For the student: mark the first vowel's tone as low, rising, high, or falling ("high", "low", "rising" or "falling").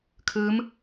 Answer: rising